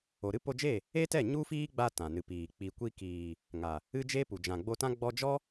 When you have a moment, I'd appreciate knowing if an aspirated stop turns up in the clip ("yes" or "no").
no